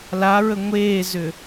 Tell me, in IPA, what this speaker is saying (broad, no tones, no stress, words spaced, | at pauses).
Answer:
laɹə ŋʷeːzʏ